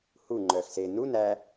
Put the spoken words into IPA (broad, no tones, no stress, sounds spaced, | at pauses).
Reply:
h u ŋ͡ǃ œː x s e n u n æ